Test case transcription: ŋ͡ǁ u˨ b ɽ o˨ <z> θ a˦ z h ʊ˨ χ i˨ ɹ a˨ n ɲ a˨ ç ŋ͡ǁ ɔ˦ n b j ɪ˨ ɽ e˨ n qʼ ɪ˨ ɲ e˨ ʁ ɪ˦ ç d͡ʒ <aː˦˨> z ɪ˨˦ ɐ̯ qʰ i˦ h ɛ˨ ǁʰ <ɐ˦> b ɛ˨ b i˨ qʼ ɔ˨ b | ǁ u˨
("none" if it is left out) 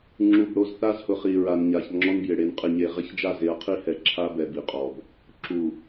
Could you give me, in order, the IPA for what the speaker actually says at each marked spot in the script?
z, a˦˨, a˦

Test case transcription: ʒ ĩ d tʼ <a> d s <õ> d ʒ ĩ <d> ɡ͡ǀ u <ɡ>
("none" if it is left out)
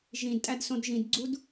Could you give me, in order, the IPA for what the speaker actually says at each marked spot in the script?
æ, õ, d, d

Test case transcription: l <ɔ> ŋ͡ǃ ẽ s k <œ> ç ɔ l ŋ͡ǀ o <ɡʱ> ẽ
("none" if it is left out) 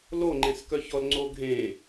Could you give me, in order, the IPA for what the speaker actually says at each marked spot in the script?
o, œ, ɡʱ

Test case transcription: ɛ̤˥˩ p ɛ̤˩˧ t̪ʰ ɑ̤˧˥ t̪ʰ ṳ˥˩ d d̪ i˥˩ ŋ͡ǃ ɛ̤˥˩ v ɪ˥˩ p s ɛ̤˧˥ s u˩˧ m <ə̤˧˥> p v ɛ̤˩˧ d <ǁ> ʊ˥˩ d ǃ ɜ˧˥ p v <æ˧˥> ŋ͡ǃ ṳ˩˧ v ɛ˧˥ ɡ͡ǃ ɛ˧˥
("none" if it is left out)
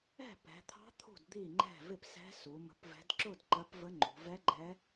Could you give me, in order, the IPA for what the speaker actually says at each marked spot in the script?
ə̤˩˧, ǁ, ə˧˥

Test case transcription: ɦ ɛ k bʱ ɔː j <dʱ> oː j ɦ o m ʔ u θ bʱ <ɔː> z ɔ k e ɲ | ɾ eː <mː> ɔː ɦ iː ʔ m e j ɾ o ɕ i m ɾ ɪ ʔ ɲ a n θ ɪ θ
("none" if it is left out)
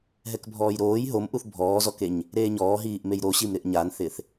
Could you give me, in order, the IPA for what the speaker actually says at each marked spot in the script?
ɾ, ɔː, ɲ

